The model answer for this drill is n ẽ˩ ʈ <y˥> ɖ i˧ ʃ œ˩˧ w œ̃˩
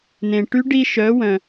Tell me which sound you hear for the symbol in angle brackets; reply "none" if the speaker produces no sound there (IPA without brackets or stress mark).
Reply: y˧˥